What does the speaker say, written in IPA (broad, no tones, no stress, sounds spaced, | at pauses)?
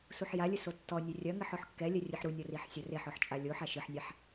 s u ħ j a lʲ ɨ s o tː ɔ nʲ e rʲ ɐ ŋ ɘ ħ ɔ ħ kː ɛ lʲ ɛ rʲ ɨ ħ ɾ u nʲ ɔ r i ħ sʲ ɐ r e ħ ɔ ħ t͡ʃʼ a lʲ o ħ a ʃ ɨ ħ nʲ a ħ